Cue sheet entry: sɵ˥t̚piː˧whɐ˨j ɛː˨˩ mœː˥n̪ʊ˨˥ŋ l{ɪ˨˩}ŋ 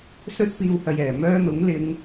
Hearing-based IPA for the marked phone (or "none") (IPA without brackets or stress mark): ɪ˨˧